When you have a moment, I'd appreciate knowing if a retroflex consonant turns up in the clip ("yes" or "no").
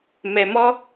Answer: no